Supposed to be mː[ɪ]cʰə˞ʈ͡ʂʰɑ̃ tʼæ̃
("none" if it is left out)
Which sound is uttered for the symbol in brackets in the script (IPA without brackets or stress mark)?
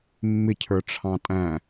ɪ